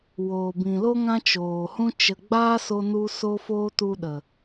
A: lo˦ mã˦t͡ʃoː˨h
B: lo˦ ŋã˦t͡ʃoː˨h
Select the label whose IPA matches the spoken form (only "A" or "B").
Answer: B